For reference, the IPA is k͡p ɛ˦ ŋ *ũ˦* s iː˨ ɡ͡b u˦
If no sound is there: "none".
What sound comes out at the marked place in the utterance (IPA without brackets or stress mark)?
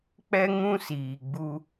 ũ˦